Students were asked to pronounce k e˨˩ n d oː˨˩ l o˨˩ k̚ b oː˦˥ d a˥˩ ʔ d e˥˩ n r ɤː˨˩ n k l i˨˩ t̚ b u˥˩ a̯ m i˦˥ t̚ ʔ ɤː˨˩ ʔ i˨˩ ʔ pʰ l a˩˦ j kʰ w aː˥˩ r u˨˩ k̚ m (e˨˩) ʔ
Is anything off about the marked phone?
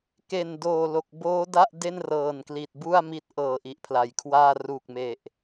no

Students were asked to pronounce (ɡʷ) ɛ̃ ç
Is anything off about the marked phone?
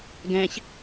yes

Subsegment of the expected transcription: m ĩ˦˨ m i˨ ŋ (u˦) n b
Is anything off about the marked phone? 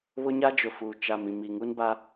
no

